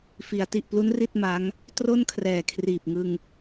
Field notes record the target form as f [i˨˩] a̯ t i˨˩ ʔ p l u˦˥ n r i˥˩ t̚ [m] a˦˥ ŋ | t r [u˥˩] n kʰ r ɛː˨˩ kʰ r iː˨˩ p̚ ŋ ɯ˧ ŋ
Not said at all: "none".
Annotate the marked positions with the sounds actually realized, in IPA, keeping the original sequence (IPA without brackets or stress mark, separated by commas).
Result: i˩˦, m, o˥˩